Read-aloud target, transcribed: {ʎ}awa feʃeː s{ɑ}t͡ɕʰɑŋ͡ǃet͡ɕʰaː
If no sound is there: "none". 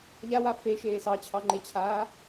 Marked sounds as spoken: ʎ, ɑ

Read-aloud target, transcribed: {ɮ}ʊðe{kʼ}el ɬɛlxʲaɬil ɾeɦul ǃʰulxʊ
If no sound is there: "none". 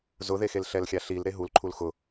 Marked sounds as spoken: z, x

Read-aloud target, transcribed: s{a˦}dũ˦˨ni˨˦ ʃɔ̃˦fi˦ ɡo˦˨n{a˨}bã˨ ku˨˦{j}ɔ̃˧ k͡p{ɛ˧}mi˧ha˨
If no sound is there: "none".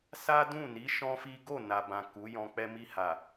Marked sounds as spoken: a˦, a˨, j, ɛ˧

